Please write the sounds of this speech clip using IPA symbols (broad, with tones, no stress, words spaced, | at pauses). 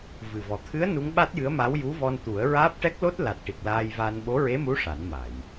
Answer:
vɨ˨˩vɔ˨˩t̪ʰɨ˧˥ə̯ nu˧˥ŋɓa˦˥t̚jɨ˧˥ə̯ma˧˥w ju˧˥vɔ˧nt̪u˨˩˦ə̯ ɹaː˦˥p̚ʈɛ˦˥k̚ lo˦˥t̚ la˨˩t̚ʈi˨˩k̚ laː˧jva˧n ɓo˧˥ɹe˧˥mu˧˥ ʂa˨˩˦nma˨˩˨j